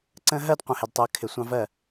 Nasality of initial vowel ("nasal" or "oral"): nasal